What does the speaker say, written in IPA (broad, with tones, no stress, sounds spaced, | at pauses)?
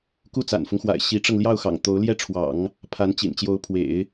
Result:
k u˥˩ t͡s a̰˨˩ n f ʊ˦ ŋ x w a̰˨˩ ɪ̯ ɕ i˧˥ ʈ͡ʂ ɤ˧ ŋ l j ɑ˥˩ ʊ̯ x ɑ̰˨˩ ŋ t̪ o˧˥ ʊ̯ l j ɛ˥ ʈ͡ʂʰ w ɑ̰˨˩˦ ŋ | pʰ a˧˥ n t͡ɕ ḭ˨˩ n t͡ɕ j o˧˥ ʊ̯ pʰ w ḛ˨˩˦ ɪ̯